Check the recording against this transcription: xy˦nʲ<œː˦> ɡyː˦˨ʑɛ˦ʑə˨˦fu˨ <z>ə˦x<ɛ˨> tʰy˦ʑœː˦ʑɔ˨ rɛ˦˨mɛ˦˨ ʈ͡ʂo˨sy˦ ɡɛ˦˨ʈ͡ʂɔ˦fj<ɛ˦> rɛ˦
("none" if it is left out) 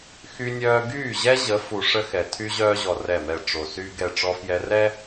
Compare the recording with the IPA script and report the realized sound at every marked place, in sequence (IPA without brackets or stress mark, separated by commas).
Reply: œː˦, ʂ, ɛ˨, ɛ˦